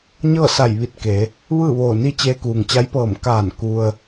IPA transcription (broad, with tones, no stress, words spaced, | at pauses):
ɲɤː˥˨sa˧˩jʋi˧˩t̚ ke˩˧ | ʋɯː˥˨ʋoː˧˩ni˥˨ t͡ɕeː˧kuː˩ŋt͡ɕa˧˥jpɤː˧˩m kaː˧˩n ku˧ə̯